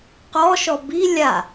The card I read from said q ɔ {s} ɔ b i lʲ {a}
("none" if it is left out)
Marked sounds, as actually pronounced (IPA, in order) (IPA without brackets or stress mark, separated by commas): ʃ, a